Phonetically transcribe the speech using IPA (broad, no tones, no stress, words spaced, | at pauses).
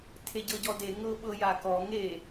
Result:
tʰeɟɤɟɔde ŋɤɓɤjakɔ ŋe